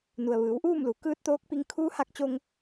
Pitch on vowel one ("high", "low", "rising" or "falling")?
low